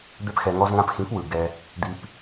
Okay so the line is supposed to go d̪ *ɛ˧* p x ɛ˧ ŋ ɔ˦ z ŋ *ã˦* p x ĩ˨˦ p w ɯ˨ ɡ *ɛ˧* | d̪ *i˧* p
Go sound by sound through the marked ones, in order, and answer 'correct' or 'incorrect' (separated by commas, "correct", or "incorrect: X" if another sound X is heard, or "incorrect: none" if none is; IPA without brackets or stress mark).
incorrect: ɛ˦, correct, correct, correct